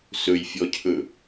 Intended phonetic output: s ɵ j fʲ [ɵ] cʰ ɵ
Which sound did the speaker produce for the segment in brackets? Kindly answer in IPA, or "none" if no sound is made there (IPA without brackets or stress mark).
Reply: ɔ